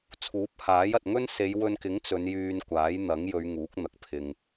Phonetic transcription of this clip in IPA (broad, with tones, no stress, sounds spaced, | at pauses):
t͡sʰ uː˨˥ p̚ h aː˨˥ j ɐ˨ t̚ ŋ ɵ˥ n s e˨˧ j w ɵ˧ n k ɪ˨˥ ŋ t͡s ɵ˨˧ n j yː˧ n kʷ aː˨˥ j n̪ ɐ˨˥ ŋ j ɵ˨˧ ɥ ŋ uː˨˥ k̚ n̪ ɐ˨ k̚ pʰ ɪ˨ ŋ